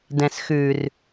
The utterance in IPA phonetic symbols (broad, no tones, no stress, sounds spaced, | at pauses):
d ɛ̃ s x ʉ r